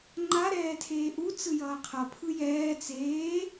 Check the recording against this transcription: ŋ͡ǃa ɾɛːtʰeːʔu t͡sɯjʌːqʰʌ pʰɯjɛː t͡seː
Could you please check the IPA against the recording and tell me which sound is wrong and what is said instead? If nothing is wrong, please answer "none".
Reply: none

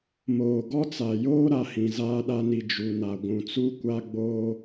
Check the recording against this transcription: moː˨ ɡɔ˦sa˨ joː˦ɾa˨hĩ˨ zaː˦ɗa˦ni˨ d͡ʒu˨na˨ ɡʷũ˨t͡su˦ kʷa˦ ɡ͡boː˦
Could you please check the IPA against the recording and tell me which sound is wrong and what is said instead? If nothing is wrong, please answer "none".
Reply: s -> t͡s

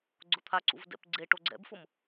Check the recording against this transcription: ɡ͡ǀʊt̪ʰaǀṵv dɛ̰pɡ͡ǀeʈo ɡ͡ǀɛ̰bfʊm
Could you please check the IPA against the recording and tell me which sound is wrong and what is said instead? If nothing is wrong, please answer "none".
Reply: none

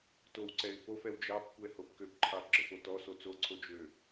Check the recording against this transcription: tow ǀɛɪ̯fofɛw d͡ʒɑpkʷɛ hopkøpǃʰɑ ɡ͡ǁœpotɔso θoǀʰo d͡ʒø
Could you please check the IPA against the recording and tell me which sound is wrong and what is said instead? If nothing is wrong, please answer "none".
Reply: θ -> t͡s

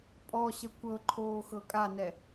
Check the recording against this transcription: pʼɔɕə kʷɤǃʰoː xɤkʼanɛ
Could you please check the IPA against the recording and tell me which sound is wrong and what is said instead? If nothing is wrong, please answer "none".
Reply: none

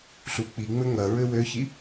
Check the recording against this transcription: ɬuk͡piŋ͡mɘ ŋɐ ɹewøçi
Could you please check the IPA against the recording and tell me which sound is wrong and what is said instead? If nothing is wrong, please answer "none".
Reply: e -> ɘ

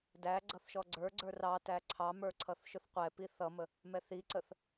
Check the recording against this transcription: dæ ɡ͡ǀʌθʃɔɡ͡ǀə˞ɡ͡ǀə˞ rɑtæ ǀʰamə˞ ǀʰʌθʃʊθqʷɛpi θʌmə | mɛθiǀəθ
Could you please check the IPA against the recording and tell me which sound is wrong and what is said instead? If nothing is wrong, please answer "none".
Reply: a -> ɑ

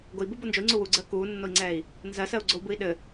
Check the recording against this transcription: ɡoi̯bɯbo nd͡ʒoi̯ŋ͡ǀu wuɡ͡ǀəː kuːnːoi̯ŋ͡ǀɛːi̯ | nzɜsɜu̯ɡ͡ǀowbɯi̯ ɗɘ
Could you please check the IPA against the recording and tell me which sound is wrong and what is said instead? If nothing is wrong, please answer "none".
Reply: none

